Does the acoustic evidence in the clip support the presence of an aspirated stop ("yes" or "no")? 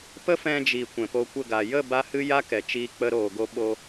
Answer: no